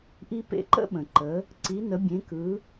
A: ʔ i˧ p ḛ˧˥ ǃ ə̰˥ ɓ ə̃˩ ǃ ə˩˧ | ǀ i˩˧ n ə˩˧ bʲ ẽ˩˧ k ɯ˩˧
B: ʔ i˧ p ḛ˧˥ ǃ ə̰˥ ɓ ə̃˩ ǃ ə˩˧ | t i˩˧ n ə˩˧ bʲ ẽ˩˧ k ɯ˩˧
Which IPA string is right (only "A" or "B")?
A